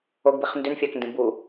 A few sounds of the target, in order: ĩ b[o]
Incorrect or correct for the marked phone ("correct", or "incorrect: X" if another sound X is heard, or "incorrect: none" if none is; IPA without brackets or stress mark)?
incorrect: u